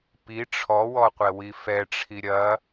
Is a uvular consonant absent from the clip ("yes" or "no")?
no